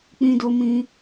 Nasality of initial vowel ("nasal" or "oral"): nasal